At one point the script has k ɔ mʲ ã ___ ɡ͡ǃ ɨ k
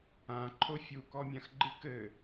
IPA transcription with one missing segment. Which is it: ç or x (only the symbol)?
x